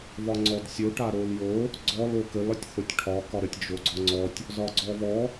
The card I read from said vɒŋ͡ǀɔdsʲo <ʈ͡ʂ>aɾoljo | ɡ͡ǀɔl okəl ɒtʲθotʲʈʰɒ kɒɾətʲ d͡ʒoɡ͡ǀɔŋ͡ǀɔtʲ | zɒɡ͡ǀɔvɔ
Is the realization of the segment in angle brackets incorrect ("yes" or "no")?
yes